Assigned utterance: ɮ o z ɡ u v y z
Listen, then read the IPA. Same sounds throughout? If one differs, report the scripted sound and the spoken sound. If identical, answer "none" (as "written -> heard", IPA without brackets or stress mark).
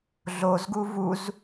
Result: y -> u